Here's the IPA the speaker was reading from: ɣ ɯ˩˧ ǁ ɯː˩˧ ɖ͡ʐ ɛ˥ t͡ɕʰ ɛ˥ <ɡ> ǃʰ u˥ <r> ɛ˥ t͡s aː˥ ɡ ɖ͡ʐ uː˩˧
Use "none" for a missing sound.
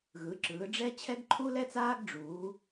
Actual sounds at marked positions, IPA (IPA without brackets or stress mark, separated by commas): ɡ, l